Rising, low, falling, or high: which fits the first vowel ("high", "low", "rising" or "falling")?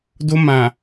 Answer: high